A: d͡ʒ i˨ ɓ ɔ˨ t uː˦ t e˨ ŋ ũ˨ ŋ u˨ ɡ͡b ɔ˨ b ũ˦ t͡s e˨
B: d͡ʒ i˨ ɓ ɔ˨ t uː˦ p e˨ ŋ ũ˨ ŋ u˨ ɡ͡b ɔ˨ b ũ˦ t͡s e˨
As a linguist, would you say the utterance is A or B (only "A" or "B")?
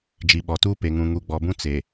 B